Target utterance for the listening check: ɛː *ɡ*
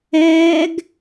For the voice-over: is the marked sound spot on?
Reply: yes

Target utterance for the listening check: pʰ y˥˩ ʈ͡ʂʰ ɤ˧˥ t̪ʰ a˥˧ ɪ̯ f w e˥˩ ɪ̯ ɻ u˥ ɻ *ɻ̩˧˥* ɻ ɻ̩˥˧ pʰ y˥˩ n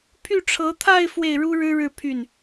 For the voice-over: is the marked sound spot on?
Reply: no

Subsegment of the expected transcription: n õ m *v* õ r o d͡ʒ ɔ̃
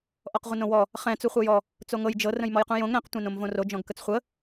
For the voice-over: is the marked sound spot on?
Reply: yes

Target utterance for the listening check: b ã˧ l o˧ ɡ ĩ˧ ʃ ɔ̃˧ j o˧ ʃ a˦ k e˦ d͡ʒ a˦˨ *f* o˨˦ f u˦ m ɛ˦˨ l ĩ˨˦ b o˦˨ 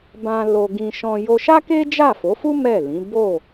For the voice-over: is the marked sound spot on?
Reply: yes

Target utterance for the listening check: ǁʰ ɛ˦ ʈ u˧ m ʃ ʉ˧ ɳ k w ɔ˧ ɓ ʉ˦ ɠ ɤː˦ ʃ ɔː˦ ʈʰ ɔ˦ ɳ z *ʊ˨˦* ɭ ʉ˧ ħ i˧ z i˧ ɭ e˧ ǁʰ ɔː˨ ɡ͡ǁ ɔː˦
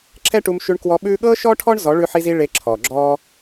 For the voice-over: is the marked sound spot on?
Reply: no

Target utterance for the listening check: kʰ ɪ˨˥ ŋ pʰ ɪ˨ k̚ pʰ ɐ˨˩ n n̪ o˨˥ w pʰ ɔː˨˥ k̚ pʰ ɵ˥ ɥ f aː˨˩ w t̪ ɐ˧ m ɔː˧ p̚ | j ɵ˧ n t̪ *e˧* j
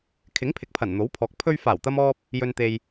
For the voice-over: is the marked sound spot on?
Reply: yes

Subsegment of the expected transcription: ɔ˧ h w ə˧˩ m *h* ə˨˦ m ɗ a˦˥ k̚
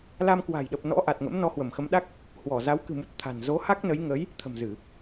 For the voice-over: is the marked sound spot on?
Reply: no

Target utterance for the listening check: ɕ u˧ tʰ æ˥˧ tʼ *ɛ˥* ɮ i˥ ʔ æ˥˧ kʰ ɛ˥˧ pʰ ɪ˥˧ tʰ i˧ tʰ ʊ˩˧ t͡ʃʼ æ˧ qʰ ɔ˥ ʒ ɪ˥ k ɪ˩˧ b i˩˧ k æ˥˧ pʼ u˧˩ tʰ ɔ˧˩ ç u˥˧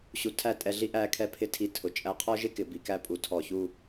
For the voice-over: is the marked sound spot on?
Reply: no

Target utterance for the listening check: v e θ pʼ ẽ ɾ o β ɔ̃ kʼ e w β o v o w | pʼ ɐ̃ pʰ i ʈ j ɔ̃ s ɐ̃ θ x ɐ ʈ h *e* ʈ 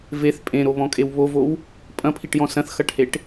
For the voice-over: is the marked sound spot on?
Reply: yes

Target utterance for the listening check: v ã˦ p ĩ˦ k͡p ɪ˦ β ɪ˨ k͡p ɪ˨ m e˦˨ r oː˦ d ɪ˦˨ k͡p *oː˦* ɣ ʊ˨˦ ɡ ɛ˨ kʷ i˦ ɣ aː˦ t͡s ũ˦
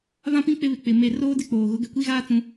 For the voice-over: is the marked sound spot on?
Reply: no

